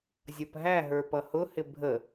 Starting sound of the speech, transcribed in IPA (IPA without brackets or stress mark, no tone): zʲ